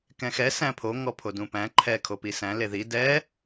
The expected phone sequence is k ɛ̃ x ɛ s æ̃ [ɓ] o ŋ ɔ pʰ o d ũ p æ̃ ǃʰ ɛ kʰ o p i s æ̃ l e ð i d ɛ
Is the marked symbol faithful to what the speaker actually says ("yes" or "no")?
no